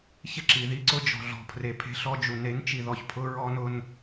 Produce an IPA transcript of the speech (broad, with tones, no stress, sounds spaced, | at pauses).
ç ɪ˦ ǁ i˨ ð i˦ ǀ ʊ˦ d͡ʒ ɔ̤˨ ɮ ɔ̤˨ pʰ r e˨ pʰ e̤˦ ɬ ɔ˦ d͡ʒ u˨ n e˨˦ n t͡ʃ i˨ ð ɔ˨ ç pʰ ʊ˦ ɹ ɔ˦ n ʊ˦ n